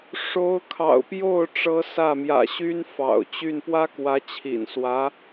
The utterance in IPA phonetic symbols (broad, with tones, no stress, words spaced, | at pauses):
ʂo˧˥ʊ̯kʰɑ̰˨˩ʊ̯pjo˥˩ʊ̯ ʈ͡ʂɤ˧˥ sä˥˩ mjä̰˨˩ɕy˥n fɑ̰˨˩ʊ̯t͡ɕy˥˩n pwä˥kwä˧˥t͡ɕʰḭ˨˩nswä˧˥